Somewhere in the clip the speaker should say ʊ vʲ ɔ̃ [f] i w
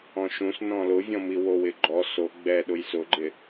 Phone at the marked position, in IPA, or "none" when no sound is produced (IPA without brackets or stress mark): m